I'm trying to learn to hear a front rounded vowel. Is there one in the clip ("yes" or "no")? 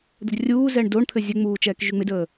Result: yes